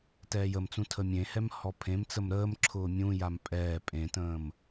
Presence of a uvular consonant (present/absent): absent